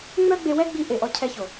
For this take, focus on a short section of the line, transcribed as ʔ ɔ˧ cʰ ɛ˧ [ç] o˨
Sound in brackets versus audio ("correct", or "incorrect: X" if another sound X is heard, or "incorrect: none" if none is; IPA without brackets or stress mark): correct